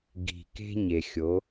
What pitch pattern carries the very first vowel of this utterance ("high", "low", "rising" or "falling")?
low